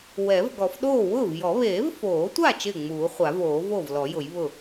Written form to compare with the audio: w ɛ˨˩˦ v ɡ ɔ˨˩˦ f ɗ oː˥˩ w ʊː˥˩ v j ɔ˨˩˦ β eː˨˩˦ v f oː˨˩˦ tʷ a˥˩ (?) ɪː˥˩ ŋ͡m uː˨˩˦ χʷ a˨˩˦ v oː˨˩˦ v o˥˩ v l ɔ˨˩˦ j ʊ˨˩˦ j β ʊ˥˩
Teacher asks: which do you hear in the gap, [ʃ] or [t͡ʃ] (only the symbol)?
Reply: t͡ʃ